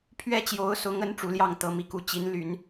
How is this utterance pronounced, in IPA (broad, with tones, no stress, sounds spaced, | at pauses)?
pʰ ɥ ɛ˥ t͡ɕ j o˧˥ ʊ̯ s ʊ˧˥ ŋ ə˧˥ n ʈ͡ʂ u˧˥ l j ɑ˥˩ ŋ t̪ ɤ˥ m i˥˧ k u˥˩ t͡ɕ i˧˥ n l y˨˩˦ n